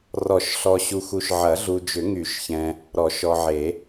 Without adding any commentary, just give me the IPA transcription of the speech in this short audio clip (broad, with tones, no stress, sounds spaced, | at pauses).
r ɔ˨˩˦ ʃ ɬ ɔ˨ ɕ u˨ x u˨ ʃ ʕ ɐ˨˩˦ ɮ u˨ d͡ʒ ʏ˨˩˦ ŋ y˨˩˦ ʃ ç ɛ̃˨ | ɾ ɔ˨˩˦ ʃ ɔ˨ ʕ e˨˩˦